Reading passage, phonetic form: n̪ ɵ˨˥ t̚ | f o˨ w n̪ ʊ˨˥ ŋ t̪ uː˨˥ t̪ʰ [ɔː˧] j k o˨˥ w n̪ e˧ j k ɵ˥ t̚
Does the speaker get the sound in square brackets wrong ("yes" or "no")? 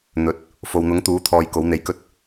no